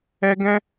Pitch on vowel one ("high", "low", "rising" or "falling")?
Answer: high